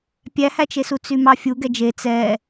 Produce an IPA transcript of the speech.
pʲ æ h æ t͡ʃ e s u t͡s y m ɑ fʲ u ɡ ɛ d͡ʒ e t͡s ɛ

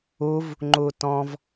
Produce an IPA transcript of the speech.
u v | ŋ͡ǃ u t ɔ̃ v

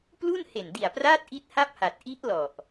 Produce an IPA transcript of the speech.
p l u˥˩ n h e˨˩ n d i˨˩ a̯ p r aː˦˥ t̚ ʔ i˦˥ t̚ h a˥˩ p̚ h a˨˩ t̚ ʔ i˦˥ ʔ l ɔ˨˩ ʔ

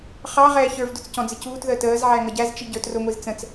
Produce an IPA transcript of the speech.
χ ɑ ʁ ɛː ç ə˞ v d ʊ t͡s c ɔ̃ d͡z ɪ c uː t ð əː t əː z ʕ æ ŋ ʌ ɟ æ z t͡ʃ i ɟ ə˞ t r ʊ ŋʷ i z t͡s ə̃ t͡s

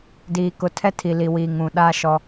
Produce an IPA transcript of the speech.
d iː˨ k ʊ˨ tʰ ɛ˦ tʰ i˨ l i˨ w iː˨ ŋ ũ˨ ɗ a˦ ʃ ɔ˦

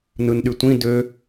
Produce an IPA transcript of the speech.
n ɯ n ɗ y tʷ ĩ d ø

